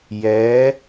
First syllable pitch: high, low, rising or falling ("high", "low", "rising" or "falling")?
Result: rising